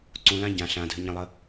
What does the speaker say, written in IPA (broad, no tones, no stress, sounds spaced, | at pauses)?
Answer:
ǀ ũ l ã ɟ ã ɬ ã dʱ ɘ ɲ ə̃ lˠ ə